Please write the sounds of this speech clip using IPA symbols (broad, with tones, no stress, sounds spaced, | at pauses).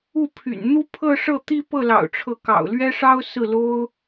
u˥˩ pʰ y̰˨˩ n n̪ u˥ pʰ ɤ˥˧ ʂ ɤ˥˩ t̪ i˥ p ɤ˥˩ l ɑ̰˨˩ ʊ̯ ʈ͡ʂʰ ɤ˧˥ k ɑ̰˨˩ ʊ̯ l ɥ ɛ˥ ʂ ɑ˥ ʊ̯ s ɹ̩˥˩ l o˥ ʊ̯